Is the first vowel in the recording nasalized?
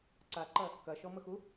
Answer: no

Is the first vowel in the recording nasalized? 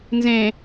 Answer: yes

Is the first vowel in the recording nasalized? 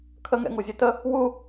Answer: no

